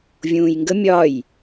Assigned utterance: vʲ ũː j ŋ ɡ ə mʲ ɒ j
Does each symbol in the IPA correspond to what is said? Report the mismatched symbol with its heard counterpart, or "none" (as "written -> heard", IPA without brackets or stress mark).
none